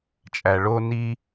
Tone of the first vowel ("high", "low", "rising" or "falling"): low